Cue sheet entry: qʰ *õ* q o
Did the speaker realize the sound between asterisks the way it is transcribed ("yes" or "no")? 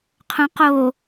yes